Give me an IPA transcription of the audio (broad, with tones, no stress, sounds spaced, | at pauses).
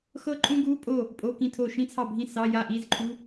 x ɤ˥ ǃʼ ũ˥ ɡ u˧˥˧ pʼ o˥˨ | pʼ o˧˥˧ k ĩ˥˨ tʰ o˥˨ ʃ ĩ˥ t͡sʰ ɑ˥˨ bʱ ĩ˥˨ s ɑ˧˥˧ j a˥˨ ʔ i˧˥˧ z ǃʰ u˧˥˧